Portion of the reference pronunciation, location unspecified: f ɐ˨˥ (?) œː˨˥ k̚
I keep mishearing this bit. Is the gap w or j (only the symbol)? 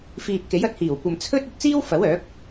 w